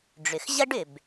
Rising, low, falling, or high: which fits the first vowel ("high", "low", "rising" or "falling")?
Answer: low